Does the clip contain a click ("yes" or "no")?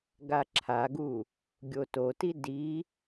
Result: yes